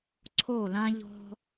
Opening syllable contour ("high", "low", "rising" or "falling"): falling